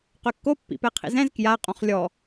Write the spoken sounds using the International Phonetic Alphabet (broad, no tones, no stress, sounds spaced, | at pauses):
q ø kː o pː ḭ p ɛ qʰ ḭ z ɛ̃ z k j a qʼ õ χ lʲ ɔ